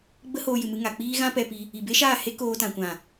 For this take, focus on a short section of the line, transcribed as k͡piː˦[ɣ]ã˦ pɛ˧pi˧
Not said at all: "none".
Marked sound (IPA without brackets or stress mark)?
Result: ɣ